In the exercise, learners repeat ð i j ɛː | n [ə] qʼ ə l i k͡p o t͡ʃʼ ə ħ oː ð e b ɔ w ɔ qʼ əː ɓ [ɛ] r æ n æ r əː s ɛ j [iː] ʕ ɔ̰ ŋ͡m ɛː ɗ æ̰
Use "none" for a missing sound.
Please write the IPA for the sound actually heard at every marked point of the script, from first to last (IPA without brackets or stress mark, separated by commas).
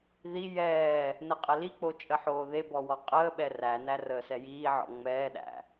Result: ə, ɛ, iː